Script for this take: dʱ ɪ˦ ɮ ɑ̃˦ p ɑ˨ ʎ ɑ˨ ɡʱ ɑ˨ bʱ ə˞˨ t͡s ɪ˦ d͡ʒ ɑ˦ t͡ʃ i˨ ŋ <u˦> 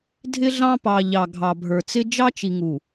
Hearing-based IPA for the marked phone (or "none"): u˨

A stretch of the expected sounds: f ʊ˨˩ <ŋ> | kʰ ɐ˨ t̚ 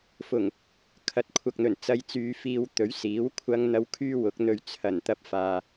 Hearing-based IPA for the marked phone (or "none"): ŋ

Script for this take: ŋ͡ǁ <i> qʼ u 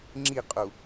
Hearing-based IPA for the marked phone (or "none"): i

